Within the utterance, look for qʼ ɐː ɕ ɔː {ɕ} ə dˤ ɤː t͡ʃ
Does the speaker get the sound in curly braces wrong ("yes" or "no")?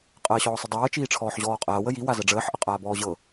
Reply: yes